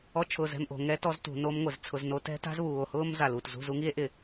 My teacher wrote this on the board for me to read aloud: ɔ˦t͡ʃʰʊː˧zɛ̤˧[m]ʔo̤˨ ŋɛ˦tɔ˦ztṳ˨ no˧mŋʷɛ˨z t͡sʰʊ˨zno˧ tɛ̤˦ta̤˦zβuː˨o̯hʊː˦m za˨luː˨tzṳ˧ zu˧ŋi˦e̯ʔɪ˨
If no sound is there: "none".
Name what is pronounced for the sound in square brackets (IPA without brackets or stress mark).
m